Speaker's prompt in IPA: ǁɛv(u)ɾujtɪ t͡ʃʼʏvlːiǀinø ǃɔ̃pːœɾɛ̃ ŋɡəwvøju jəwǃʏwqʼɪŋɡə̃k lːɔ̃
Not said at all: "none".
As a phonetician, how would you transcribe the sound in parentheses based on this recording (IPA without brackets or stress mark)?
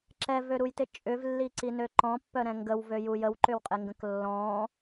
ø